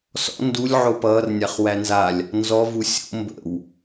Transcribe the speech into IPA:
s ɔ̰ n d u lʲ ʕ o p ʌː r nʲ a χ w æ n z a lʲ | n z ɔ v u sʲ o̰ m b ə̰ w

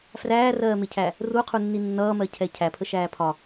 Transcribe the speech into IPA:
f r æː r ɜː m ɪ cʰ æ | r u qʰ u nː i nː ʌː m ɜ cʰ ɛ cʰ æ pʰ ə ʃ æː pʰ ɒ

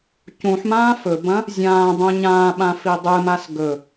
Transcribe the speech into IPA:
c ũ ħ m ãː f ɵ b ɐ̃ | zʲ ãː dˤ ũ ɲ ã ɓ ã f i dˤ ɨ m a s ɡ ɵ

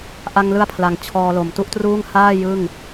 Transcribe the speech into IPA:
ʔ a˧ ŋ l ɯ˦˥ a̯ pʰ l a˩˦ ŋ t͡ɕʰ ɔː˧ l o˨˩ m t u˥˩ ʔ t r uː˥˩ ŋ h aː˥˩ j ɯ˥˩ ŋ

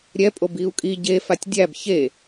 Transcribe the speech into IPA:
ɾʲ ɛ pʼ o b i u̯ kʼ i ɟ e f a tʲ dʲ æ b ç e

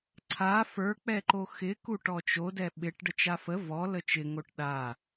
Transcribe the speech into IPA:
ǀʰ a f ə˞ k͡p ɛ ǃ o x ɪ k u ʈ ɔ t͡ʃ o d ɛ ɓ ɪ ʈ ɖ ə t͡ʃ a f ə v ɔ l ə t͡ʃ ɪ ŋ o ʈ ɗ a

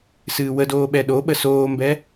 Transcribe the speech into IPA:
s ɨː w ə d oː ɓ ɛ ɗ o ɓ ə s oː m b ɛ

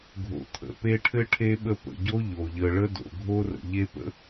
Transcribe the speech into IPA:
ɡʱ o̰˨ t̪ʰ ə̰˩ p e˦ ʈʰ ɘ˥ ʈʰ e˥ ɓ ə˦ p ə̰˩ ɟ o˥ ʎ o˩ ʎ ə˨ ɭ ə˥ d o̰˩ ɡʱ o˥ r ə̰˨ ʎ e˦ p ə̰˥

